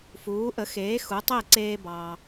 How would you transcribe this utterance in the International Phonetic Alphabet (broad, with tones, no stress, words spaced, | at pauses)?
fuː˩˥ʔə˩˥ xeː˩˥ xu˩˥tˤe˥˩ǀeː˧ bɑː˩